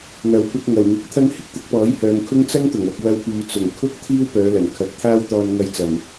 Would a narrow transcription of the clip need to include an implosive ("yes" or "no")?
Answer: no